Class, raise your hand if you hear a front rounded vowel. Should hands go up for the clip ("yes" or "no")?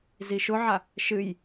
no